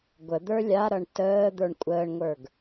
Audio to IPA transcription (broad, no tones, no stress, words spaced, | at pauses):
ɡʷəd̪ə˞ lʲaɾʌɳ təː d̪ə˞ɳkʷʼəːɳŋʷə˞ɡ